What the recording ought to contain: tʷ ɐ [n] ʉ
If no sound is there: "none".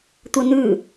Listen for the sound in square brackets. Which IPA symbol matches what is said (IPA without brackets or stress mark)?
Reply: n